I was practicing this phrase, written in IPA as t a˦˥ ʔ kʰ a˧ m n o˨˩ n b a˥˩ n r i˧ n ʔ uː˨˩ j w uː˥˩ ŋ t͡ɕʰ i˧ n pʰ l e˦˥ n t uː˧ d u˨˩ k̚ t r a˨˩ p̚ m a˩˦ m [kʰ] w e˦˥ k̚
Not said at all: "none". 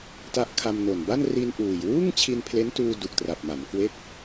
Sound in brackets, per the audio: k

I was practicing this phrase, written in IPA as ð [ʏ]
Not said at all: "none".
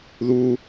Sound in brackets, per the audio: u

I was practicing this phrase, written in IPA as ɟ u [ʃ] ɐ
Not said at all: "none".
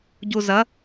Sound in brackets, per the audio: z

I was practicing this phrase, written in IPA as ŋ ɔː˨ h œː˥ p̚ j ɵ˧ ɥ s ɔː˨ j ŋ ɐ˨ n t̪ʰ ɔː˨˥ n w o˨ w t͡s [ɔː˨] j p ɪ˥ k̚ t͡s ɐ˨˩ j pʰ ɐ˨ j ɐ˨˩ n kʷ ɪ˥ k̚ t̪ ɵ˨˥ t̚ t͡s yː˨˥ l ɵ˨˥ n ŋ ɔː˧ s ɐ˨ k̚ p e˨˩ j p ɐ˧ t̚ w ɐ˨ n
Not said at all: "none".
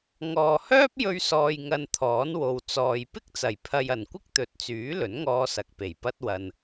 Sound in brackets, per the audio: ɔː˨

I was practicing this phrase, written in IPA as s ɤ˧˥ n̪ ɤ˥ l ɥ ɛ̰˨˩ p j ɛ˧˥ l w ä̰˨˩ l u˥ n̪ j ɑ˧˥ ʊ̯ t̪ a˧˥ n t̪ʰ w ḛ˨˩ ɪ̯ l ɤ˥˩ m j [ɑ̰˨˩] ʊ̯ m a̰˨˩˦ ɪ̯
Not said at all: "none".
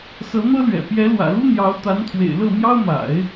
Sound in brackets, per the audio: ɑ˥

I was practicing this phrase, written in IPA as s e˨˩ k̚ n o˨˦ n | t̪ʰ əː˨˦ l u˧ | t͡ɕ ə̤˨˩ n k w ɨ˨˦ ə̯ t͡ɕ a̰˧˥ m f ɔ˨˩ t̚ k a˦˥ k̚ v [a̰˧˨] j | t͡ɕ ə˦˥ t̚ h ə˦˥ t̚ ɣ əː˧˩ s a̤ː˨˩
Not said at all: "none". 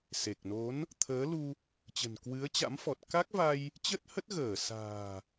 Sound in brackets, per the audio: a˧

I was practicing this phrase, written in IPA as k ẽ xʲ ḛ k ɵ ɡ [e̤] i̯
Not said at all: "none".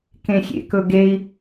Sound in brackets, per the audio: e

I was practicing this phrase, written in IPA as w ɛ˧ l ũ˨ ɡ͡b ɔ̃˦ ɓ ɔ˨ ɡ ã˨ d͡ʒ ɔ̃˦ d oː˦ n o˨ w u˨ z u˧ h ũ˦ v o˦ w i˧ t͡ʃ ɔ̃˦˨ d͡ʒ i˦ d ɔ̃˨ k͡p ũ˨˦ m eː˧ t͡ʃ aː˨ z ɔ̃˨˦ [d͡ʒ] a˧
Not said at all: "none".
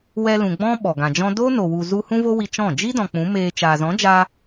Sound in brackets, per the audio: d͡ʒ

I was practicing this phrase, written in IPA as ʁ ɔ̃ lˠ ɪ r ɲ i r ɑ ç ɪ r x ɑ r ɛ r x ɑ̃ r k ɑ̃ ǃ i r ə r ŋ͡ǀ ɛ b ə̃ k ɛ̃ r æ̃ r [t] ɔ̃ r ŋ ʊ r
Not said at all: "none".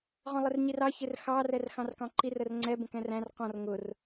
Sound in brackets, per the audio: q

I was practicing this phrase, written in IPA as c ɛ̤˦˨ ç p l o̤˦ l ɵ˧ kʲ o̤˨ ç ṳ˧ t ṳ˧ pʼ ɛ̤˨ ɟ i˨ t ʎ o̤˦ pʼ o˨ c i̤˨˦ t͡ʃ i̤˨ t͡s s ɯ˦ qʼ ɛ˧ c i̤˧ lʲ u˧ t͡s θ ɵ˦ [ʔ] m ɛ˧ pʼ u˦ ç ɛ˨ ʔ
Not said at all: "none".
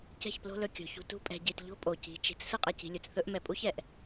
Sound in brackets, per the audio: ʔ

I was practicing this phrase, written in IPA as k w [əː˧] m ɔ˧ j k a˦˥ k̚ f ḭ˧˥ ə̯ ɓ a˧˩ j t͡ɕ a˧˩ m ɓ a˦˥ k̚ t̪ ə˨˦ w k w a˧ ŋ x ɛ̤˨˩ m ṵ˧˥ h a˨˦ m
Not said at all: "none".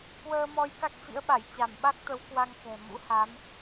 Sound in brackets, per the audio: əː˧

